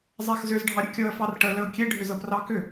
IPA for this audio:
zˤ a x z ʏ z ɖʱ ɑ ɾʲ ə kʲ ɤ ə̯ f ɑ r ʈ ə l ə ʊ̯ kʲ e ɖʱ ʏ z ɤ p r ɑ k ʏ

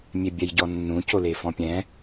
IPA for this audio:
mʲ e bʲ ɛ j ɟ ɔ nː ũ c o l e f ɔ̃ pʲ ɛ̃

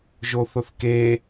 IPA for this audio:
ʒ o θ ʊ θ k e

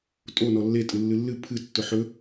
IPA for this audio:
tʼ o n ɔ lː e tʼ ɨ lː ɨ lː ɨ pʰ ɨ tː ʊ ħ ɵ

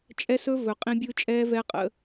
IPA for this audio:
t͡ʃʼ ɛ˦ s ɵ˦ v ɵ˨ qʼ ĩ˦ bʲ ɯ˦ t͡ʃʼ ɛː˦ v ɛ˦ qʼ ə̰˨˦

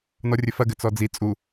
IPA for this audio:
n ɔ rʲ ɘ f ɐ ɡ ɘ t͡s ɔ d͡z i t͡sʼ u

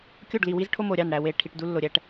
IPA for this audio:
kʲ o˦˨ ɖ l i˨ w i˦ z ʈʰ o˦ m o˨ ɾʲ ɑ˦˨ n ɽ æ˨ w e˨ ʈʰ i˨ ʈ d u˦ lː o˨ ɾʲ æ˦ ʈ

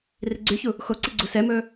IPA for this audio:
r i ɡ͡ǀ y ç u | x o ǀ i ɡ͡ǀ u s ɛ m ɵː

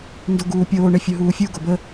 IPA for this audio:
n d o ɡ uː pʲ oː ɳ e fʲ u ɦ uː fʲ u ɡ o b ə

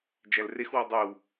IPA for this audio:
d͡ʒ æ l r e x w ɔ dˤ ʉ w

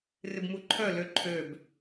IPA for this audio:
r ɪ b m u ǃʰ œ l ø ǃʰ ø b

